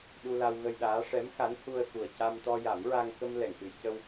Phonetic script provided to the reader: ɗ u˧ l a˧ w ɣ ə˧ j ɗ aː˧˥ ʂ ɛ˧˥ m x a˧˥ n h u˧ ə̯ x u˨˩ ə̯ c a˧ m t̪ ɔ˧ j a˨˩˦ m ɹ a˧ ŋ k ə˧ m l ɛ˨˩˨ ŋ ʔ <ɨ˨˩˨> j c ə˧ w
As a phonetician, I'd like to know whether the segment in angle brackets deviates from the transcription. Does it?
no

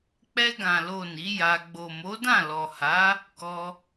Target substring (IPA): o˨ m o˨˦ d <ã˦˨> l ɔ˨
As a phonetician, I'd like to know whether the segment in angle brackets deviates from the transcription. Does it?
no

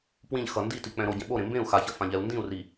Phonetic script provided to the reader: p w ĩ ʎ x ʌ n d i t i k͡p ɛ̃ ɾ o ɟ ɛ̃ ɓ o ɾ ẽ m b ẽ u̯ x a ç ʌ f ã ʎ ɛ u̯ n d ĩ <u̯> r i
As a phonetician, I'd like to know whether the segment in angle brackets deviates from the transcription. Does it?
no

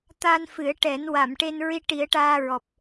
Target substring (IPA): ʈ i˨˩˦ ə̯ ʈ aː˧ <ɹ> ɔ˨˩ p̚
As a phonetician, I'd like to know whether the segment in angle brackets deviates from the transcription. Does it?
no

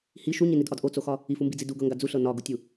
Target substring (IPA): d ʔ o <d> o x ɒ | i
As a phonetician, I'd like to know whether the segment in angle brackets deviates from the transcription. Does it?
yes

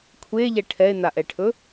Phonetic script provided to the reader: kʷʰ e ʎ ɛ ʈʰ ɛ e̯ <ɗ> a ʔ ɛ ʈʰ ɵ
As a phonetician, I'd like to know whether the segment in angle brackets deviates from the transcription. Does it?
yes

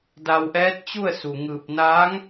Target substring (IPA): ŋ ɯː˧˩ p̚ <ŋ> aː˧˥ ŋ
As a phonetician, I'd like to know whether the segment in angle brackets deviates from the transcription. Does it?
yes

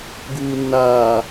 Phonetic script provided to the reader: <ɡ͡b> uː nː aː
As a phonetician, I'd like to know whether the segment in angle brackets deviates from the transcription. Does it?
yes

